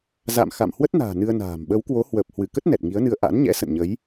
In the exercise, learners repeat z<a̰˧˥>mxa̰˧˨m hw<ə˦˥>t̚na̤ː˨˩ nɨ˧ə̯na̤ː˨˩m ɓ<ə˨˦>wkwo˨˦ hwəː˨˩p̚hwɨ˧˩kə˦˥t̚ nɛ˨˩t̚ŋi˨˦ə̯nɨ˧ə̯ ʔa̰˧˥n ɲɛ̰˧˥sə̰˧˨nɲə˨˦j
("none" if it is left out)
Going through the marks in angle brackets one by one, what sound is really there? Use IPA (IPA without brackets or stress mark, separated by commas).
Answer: a̰˧˨, ə˦˥, ə˨˦